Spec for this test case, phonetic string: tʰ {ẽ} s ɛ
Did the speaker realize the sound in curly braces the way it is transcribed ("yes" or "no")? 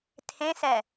yes